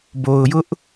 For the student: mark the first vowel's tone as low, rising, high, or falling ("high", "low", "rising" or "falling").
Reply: low